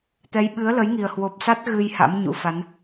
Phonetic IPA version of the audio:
t̪ ɛ˨˦ j ɓ ɨ˨˦ ə̯ l ə˨˦ j ŋ i˨˩ ə̯ h w o˨˩ p̚ s a˦˥ t̚ ɣ ɨ˧ j h a̰˧˥ m ɲ ṵ˧˥ f a˨˦ n

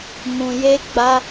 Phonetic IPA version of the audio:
m ũ˨ j e˧ ɡ͡b a˧

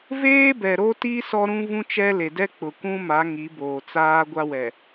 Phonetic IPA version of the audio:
v eː˦ b ɛ˨ ɾ o˦ t i˦ s ɔ˦ ɾ ũ˦ v ũ˦ t͡ʃ ɛ˦ l e˨ d ɛ˦ k͡p ʊ˨ kʷ ũ˦ m a˨˦ ŋ i˨˦ b oː˨ t͡s aː˦ ɡʷ a˦ w ɛ˨

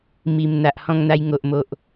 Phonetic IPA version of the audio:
m i˨˩ m n̪ a˨ ʔ h ɔ̃˧ ŋ n̪ a˧ j ŋ o˨ ʔ m o˨ ʔ

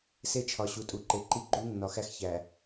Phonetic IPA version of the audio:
s e˦ t͡ʃʰ ɒ˨ ɕ u˨ tʼ u˨ ǃ e˨ ǃ i˦ ɡ͡ǃ u˦ nː ɒ˨ x æ˦ x ç æ˨

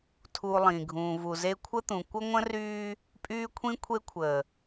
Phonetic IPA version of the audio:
tʰ u˨ lˠ ĩː˨ ɡʱ ũː˨ v u˨ z e˦ kʷʰ ə˦ t̪ ũ˨ kʷ ə˦ ŋʷ ə̃˦ r yː˦ | pʼ yː˦ kʷʰ ĩ˦ kʷʰ e˦ kʷʰ əː˨

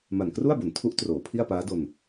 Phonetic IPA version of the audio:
m a˨˩ n k r u˥˩ a̯ b o˩˦ n tʰ u˦˥ ʔ t r oː˩˦ pʰ i˥˩ a̯ p aː˦˥ d o˧ n

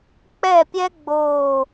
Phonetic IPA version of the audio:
k͡p ɛ˥˧ pʲ ɛ˥ ɡ͡b oː˥˧

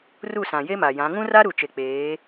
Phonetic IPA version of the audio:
r u˦˨ s ã˨ j e˦ m a˨ j ã˨˦ ŋ ũ˦ r a˦ ɾ u˨ t͡ʃ e˨ k͡p eː˨˦

